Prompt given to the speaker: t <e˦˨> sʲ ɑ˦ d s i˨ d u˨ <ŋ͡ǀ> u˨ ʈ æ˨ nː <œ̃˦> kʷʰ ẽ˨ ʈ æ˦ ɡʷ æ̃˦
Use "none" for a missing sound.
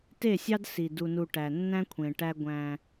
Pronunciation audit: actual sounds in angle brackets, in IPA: e˦˨, n, æ̃˦

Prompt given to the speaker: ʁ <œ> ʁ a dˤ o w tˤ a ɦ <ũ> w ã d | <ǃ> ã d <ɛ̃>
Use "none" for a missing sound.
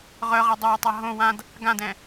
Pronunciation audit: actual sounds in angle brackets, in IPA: œ, õ, ɡ, ɛ̃

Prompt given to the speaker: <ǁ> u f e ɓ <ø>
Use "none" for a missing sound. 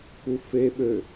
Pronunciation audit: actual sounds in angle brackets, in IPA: k, ø

